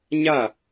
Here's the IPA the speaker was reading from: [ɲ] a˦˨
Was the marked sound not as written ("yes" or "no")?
no